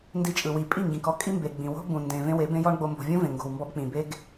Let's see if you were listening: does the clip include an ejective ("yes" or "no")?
yes